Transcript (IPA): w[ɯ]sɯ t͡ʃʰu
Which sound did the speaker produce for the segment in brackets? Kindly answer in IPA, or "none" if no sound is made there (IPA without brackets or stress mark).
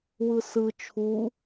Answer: ɯ